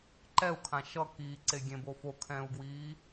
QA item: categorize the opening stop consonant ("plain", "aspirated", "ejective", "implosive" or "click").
click